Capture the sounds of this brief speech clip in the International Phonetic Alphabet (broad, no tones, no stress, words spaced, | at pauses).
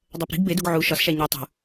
dˤɜpɾi̤ɡ beduɡ ʕu ʃɒsʃæ ɲe tˤṳ